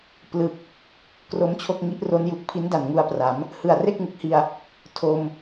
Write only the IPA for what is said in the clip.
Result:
p l ɯ˨˩ k̚ | k r o˦˥ m t͡ɕʰ o˥˩ k̚ ŋ i˦˥ ʔ r o˦˥ n j u˨˩ k̚ pʰ i˦˥ n d a˨˩ n ŋ u˧ a̯ p r a˩˦ m | h ɯ˨˩ a̯ r e˥˩ k̚ ŋ ɯ˨˩ k̚ h i˧ a̯ | tʰ o˧ m

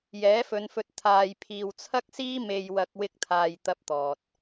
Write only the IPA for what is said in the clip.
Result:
j ɛː˨˥ f ɵ˨˧ n f ɵ˧ t̚ t̪ʰ aː˨ j pʰ iː˨ w t͡sʰ ɐ˥ k̚ s iː˥ m e˧ j w ɐ˧ k̚ w ɪ˥ k̚ t̪ʰ aː˧ j t̪ ɐ˥ p̚ t̪ ɔː˨ t̚

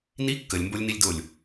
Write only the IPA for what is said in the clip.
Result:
n i kː ə lʲ m b o lʲ n i lʲ d o lʲ

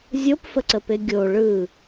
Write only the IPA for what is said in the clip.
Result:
zʲ o p f ə ǀ ə p e ɡʲ o ɭ ɯ

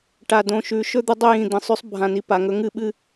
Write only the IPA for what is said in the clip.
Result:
ʈ a˨ d õ˨ ʃ ʉ˨˦ ʃ ɵ˦ d̪ ɨ˦ dˤ ɵ˦ j ĩ˨ d̪ ĩ˨ sˤ ʉ˦ sˤ bʱ ã˨ n i˨ p a˨ ŋ ɵ˦ ŋ ɨ˦ ɓ ɨ˦

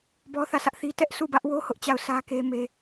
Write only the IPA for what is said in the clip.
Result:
b ɔ˦ θ ä˦˨ sʰ ä˦ ʔ θ i˦ t ɛ˦ ʔ sʰ u˦˨ b ä˦ ʔ w o˦ h ʊ˦ ʔ t͡ɕ a˦˨ ʊ̯ s ä˦ k e˦ m e˦

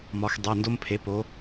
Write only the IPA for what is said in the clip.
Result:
m ɒ˩˧ x dˤ e˩˧˩ n d o˦ m pʰ e˩˥ p o˩˧

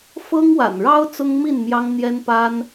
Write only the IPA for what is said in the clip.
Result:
f ɤ˦ ŋ w a̰˨˩ n ɻ ɑ˦ ʊ̯ t͡s ʊ˦ ŋ m i˥˨ n m j ɑ˦ ŋ n̪ j ɛ˦ n p a˦ n

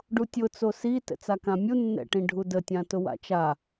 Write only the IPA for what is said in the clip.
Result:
ɖ u tʲ ʊ t͡s o s i t ɛ̰ t͡s a k ã mʲ u nː ɛ̰ ʈ ĩ ɖʱ u d ə tʲ ã t ʊ w a̰ t͡ʃ a

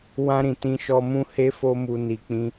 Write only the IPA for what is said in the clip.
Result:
w ã˧ ɾ ĩ˨ t ĩ˧ ʃ ɔ˧ m ũ˦ h e˦ f o˦ m u˧ n i˨ k͡p ĩ˧

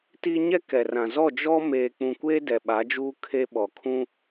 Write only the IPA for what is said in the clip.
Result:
t i˦ ɲ ɛ˦ k ɛ˨ r ã˨ z ɔ˦˨ d͡ʒ ɔ˦ m eː˨ k͡p ũ˨ kʷ eː˦ d ɛ˨ ɓ a˨˦ d͡ʒ uː˦ kʰ e˦ ɓ ɔ˨ kʰ ũ˦

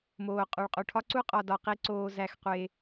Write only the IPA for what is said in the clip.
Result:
m oː˨ qʼ u˨ ɭ qʼ u˨ ʈʰ ɒ˦ ǀ u˦ qʼ ɒ˨ d ɒ˨ q i˦ ǀ oː˦ z æ˦˨ x qʷ e˦

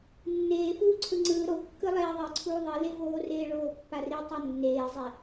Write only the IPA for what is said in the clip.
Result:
nː eː f uː ǀʰ ɯ ŋ͡ǀ ɯː ɾ o kː ɯ lˠ eː ðˤ i ǀʰ uː ðˤ i l e v oː r eː ɭ oː pː a r i tˤ o nː eː zˤ ɛ

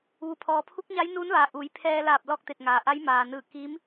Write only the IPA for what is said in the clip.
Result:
ʋ u˩ pʰ ɔː˩ pʰ u˧˥ k̚ ɲ a˧˥ j n uː˧˥ n ʋ aː˩ ʔ u˩˧ j pʰ ɛː˧ l aː˧˩ p̚ l ɔː˥˨ k̚ t̪ e˧˩ t̚ ŋ aː˩ ʔ a˧˥ j m aː˩ n ɯː˧˩ k iː˧˥ m

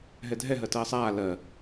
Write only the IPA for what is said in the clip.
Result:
ɦ ɛ dʱ ɛ ɦ ɜ t ɜː sˤ aː l ɜ

